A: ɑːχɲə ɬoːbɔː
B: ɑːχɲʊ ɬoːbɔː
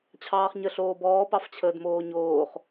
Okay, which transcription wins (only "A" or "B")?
A